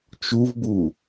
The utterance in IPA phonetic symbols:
t͡ʃ u v b u

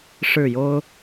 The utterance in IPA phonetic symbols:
ʂ ɻ̩˥˩ j o˥ ʊ̯

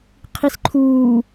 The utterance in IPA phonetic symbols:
qʰ i s ǃʰ uː

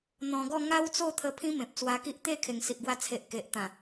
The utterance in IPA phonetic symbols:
n̪ ɔ̃˧ ɡ ɔ˥˧ ŋ a˦ w t͡s o˥˧ t̪ʰ ə˧ pʰ ĩ˦ m ẽ˨ p̚ t͡s w a˧ k i˦ ʔ t̪ e˥˧ kʰ e˨˩ ŋ s i˨ ʔ ɡ w a˧ t͡sʰ e˨ ʔ k e˨ ʔ t̪ ã˨˩

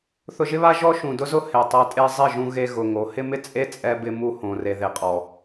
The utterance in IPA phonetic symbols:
θ ʊ˧ ʒ ɪ˦ β a˦ ʒ ɔ˦ ʃ ũ˨ d ʊ˦ z ʊ˦ h e˨ tˤ a˧ tʼ e˦ zˤ ɪ˦˨ ʒ ũ˧ ɣ e˧ ɣ ʊ˨ ŋ o˨˦ h ɪ˦ m ɪ˦ t͡sʼ e˦ t͡sʼ ɛ˦ b ɪ˦ m u˧ h õ˨ r e˨ ð e˨ qʼ ɔ˨

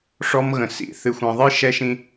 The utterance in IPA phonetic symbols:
ʂ ɔ˦ m ɣ ə̃˨ s ḭ˨ θ ɨ˨ xʷ ɛ̃˨ ðˤ ɨ˦ ʃ ɛ˧ ʃ ĩ˧

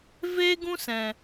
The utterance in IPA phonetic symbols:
v eː˦ ɡ ũ˦ s ɛ̃˨

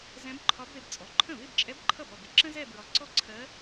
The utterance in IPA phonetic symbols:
z ɛ̃˧˥ b ǃʰ ɒ˧˥ b ð ɪ˧ b t͡sʼ ɔ˩˥ ǃʰ ə̃˥˩ β ɪ˥˧ b t͡ʃʼ ɛ˧˥ b ǃʰ ʌ˥˩ b ɒ˥˩ b ɪ˧ ǁ ə̃˥ z ɛ˥˧ b ɹ ɒ˩˥ ǀ ɔ˥˧ ǀʰ ɜ˧˥

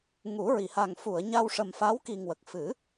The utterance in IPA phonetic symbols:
ŋ u˨˩˦ ɹ i˨˩˨ h a˨˩ ŋ f u˨˩˨ ə̯ ɲ a˧ w ʂ ə˨˩ m f a˧˥ w k i˨˩ ŋ w ə˨˩ k̚ f ɨ˨˩˦

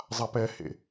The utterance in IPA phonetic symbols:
zˤ a p ɛ h ḛ

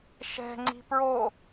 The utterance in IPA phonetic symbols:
ʃ ɛ̤ ŋ͡ǀ i̤ p ɹ o

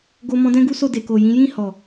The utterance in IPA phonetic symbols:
ɡ o˧ m ɔ̃˧ d ɛ̃˦ ɡ u˦ s o˦˨ d e˨ k o˨ j ĩ˨˦ j ĩ˦˨ h ɔ˨

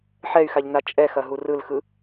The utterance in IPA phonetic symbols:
ħ ɛ y̯ x a ʎ n a t͡ʃʼ ɛ x ɐ ɦ u r ɯ l x ɯ

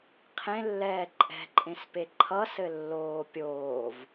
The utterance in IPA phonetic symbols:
qʰ ẽ lː ɛː ǃʼ ɛ̤ ǃʼ ẽ s p e ǃʰ ʌ s ɘ lː oː pʲ oː v

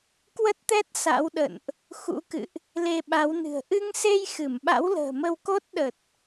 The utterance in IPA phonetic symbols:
k w ə˦˥ t̚ t̪ ɛ˦˥ t̚ s a̰˧˥ w ɗ ə̰˧˨ n ʔ | x ṵ˧˥ k ɨ̰˧˨ ʔ | l e˧ ɓ a˨˦ w n ɨ̤˨˩ ə̯ ʔ ɨ˧ ŋ s e˧ j x ɨ˧˩ m ɓ a̰˧˥ w l ə̤ː˨˩ m ə˧ w k o˦˥ t̚ ɗ ə˨˩ t̚

